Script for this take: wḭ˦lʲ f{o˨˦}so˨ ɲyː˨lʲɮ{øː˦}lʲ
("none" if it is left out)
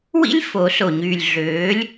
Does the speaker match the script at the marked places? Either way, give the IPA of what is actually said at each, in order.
o˨˦, øː˨˦

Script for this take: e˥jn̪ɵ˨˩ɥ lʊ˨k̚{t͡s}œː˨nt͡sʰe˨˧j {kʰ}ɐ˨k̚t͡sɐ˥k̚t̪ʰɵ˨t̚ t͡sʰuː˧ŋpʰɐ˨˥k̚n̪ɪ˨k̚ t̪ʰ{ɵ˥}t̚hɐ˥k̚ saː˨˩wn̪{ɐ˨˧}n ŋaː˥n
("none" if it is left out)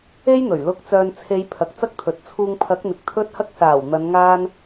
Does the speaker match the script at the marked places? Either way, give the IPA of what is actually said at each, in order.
t͡s, pʰ, ɵ˥, ɐ˨˧

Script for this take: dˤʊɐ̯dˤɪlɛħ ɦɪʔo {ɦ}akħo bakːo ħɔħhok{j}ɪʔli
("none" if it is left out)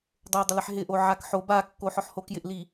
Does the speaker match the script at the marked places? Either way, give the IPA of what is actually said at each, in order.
ʕ, j

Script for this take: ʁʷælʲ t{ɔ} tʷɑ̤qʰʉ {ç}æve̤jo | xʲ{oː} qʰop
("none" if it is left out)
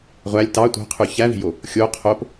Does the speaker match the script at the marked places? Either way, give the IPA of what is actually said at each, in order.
ɑ, ç, o

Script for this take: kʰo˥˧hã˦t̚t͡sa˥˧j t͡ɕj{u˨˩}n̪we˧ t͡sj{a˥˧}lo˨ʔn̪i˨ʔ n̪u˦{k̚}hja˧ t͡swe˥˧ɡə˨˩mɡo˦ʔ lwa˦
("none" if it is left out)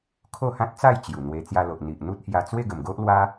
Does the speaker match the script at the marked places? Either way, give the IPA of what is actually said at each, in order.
u˨˩, a˧, t̚

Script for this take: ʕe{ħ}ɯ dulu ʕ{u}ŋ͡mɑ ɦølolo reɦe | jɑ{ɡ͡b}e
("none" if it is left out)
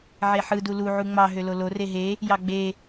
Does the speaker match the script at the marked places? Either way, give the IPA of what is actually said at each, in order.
ħ, u, ɡ͡b

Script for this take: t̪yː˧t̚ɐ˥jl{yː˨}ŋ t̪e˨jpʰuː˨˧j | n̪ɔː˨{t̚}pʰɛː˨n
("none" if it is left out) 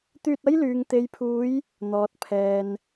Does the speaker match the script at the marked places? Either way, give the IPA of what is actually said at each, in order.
yː˨, t̚

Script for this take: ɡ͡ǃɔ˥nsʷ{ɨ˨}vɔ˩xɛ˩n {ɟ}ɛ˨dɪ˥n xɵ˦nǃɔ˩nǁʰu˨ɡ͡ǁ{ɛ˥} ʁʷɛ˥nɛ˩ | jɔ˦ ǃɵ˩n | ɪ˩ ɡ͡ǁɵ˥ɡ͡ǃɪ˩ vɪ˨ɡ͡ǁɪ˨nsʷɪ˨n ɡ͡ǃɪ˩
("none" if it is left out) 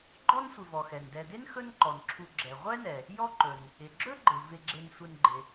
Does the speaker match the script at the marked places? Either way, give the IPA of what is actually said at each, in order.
ɪ˨, d, ɛ˩

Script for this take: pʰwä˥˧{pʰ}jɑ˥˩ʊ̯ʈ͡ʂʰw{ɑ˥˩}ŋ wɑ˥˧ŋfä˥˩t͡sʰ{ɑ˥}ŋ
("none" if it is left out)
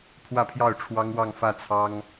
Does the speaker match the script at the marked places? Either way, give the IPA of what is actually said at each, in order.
pʰ, ɑ˥, ɑ˥

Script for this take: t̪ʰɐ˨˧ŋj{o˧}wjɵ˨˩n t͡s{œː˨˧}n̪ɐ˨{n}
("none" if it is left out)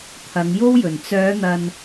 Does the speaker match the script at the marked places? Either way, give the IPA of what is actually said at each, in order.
o˥, œː˨˧, n

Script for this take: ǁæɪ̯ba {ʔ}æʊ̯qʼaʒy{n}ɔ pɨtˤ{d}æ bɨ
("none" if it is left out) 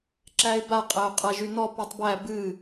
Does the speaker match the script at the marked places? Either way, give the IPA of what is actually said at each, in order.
qʼ, n, b

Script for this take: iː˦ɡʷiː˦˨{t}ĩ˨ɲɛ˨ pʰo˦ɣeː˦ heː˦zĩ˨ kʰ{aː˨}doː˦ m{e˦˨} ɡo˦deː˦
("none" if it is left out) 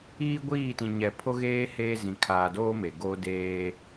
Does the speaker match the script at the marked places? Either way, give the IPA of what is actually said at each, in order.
t, aː˨, e˨

